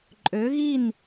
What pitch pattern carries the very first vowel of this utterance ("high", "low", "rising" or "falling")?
rising